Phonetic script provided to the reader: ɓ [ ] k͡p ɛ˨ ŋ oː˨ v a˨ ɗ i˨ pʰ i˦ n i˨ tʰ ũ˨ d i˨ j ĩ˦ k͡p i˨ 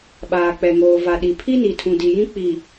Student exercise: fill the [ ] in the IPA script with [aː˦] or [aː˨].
aː˨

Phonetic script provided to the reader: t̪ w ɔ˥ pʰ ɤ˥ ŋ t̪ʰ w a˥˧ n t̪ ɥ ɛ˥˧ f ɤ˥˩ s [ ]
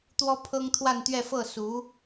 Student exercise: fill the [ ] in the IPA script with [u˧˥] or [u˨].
u˧˥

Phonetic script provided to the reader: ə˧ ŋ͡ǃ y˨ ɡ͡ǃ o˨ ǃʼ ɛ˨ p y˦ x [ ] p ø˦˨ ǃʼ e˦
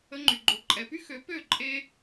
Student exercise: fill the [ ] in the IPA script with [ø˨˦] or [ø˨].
ø˨˦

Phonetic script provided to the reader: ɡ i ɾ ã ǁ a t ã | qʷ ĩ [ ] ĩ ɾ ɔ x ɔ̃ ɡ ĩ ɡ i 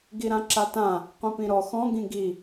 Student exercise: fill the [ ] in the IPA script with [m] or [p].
p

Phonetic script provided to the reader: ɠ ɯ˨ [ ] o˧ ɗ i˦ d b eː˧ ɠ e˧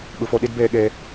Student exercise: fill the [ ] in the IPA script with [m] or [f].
f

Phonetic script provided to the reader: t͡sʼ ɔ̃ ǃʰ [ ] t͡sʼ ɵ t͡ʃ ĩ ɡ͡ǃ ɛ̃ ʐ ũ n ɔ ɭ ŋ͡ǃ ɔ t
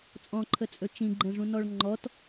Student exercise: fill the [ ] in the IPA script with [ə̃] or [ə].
ə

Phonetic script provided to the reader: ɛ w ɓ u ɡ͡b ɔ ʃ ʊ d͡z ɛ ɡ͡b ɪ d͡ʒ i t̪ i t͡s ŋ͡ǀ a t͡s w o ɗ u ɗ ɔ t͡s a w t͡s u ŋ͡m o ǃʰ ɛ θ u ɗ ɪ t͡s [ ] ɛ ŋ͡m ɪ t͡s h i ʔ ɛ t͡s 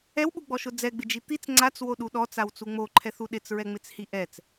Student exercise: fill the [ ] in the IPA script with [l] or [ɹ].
ɹ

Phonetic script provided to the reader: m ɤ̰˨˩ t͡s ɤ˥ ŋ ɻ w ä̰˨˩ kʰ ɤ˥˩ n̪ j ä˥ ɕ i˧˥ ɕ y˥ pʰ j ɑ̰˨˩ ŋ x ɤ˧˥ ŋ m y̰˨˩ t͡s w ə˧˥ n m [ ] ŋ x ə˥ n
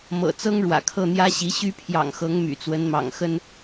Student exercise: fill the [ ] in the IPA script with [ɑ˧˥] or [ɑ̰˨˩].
ɑ̰˨˩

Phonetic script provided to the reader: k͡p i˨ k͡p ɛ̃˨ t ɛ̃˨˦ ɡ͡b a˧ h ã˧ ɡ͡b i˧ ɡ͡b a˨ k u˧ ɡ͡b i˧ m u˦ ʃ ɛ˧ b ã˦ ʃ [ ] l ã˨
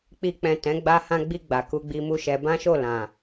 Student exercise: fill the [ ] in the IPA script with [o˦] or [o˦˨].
o˦˨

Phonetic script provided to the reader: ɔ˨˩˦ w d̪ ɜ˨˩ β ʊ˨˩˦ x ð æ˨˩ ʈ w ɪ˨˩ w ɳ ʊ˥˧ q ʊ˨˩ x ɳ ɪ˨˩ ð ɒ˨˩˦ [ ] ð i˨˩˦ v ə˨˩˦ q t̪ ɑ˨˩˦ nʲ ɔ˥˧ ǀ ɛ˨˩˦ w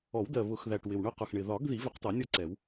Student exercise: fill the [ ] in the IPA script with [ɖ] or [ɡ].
ɡ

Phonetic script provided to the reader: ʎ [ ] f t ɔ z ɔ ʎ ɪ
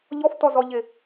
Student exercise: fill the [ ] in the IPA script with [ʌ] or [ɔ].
ɔ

